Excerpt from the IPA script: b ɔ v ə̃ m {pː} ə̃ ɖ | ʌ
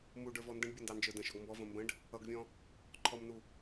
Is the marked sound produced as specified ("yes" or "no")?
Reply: no